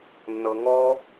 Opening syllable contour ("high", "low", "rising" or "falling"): low